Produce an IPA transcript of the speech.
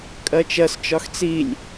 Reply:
kʼ ɜ t͡ʃ ɜ s t͡ʃ ɒ x t͡s i lʲ

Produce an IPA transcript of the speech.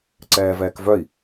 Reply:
ǀ ɛː v ɛː k v œ i̯

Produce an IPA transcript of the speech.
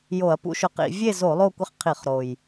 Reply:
j o˧˩˧ ɐ̯ p ṵ˦ ʃ ʊ˨˥ q ḭ˧˩˧ vʲ e˥˨ z o˧˩˧ lˠ o˥˨ kʷ ɪ˦ χ qʰ i˧˩˧ χ ɾ o˨˩ j

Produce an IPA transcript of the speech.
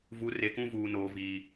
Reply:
v u˨˦ r e˨ k ũ˦ v uː˨ n oː˨ v iː˨

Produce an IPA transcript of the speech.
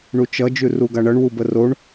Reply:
ɳ u t͡ʃ ʌ d͡ʒ ʉ r u ɡ a ɳ ʌ ɳ w u b ə r o ɳ

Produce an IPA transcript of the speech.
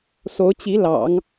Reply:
s o˧˥ ʊ̯ t͡ɕ i˧˥ l ɑ̰˨˩˦ ŋ

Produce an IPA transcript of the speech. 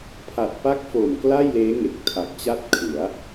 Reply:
pʰ a˨˩ t̚ p a˦˥ k̚ f o˨˩ m k l a˥˩ j l eː˦˥ ŋ e˨˩ k̚ tʰ a˨˩ k̚ t͡ɕ a˥˩ t̚ kʰ ɯ˩˦ a̯

